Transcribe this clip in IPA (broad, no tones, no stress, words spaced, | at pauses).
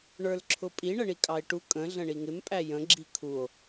ɳə˞lǁʰʊpʼi ɳəɳikʼɑe̯ʈu kʼə̃ ɮə̃ɳiŋɪm pʼæjə̃ ɡ͡ǁikʰuo̯